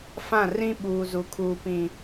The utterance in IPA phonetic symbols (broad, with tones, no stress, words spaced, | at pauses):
fã˦˨ rĩ˦ ɓuː˨zu˨kʰuː˨ pĩ˨